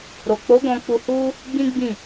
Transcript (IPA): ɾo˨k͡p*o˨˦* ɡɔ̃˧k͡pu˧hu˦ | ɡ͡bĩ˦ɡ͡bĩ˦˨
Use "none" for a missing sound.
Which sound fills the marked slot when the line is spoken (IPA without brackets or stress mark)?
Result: o˨˦